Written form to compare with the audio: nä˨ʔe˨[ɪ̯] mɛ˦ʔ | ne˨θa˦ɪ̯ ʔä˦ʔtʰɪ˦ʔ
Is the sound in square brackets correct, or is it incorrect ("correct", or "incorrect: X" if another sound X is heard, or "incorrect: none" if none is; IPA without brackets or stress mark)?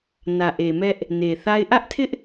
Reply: incorrect: none